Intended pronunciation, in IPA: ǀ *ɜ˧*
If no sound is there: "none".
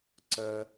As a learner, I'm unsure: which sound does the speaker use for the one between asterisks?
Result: ɜ˧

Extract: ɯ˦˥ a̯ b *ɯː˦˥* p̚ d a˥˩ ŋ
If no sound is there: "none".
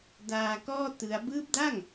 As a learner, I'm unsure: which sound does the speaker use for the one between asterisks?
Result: ɯː˦˥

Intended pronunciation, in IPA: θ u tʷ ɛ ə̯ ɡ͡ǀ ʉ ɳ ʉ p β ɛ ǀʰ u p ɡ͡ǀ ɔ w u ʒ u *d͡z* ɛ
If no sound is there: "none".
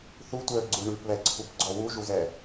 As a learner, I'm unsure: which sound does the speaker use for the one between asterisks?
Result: z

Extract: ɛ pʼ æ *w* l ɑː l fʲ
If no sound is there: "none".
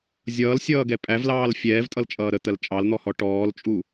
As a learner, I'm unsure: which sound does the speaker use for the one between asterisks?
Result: v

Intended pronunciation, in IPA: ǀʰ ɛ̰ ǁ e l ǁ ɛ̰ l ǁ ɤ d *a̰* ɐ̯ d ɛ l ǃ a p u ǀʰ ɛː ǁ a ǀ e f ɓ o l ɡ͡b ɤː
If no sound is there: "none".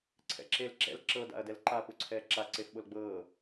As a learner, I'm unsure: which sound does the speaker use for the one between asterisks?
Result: a̰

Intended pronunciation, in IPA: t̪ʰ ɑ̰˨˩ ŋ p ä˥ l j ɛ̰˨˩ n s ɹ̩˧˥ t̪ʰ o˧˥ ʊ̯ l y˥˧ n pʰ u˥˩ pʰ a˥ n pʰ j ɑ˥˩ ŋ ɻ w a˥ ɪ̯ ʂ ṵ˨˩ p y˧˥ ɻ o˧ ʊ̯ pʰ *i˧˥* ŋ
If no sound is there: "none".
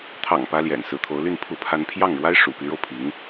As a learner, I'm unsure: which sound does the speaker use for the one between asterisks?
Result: i˧˥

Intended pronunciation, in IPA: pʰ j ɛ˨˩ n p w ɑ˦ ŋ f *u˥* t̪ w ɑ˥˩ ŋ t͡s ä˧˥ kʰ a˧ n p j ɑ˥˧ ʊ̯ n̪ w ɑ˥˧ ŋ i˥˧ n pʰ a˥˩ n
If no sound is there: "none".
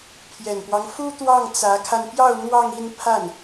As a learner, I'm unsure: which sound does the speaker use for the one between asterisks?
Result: u˥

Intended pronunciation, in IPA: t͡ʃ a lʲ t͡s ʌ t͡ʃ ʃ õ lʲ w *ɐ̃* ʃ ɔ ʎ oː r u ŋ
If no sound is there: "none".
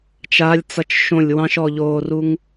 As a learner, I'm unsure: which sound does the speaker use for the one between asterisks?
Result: ɑ̃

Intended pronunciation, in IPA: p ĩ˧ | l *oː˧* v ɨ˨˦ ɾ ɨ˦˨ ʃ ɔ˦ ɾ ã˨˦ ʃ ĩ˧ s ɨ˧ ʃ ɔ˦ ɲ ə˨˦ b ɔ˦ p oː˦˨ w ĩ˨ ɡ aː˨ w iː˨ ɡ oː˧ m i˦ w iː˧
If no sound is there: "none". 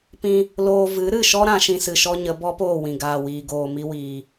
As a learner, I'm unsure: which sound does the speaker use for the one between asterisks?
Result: oː˧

